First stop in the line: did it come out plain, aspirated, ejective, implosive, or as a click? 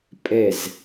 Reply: ejective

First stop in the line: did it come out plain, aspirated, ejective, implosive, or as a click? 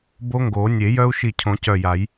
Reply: plain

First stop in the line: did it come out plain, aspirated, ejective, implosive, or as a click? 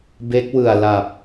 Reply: plain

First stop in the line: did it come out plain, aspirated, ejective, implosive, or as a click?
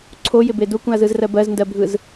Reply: click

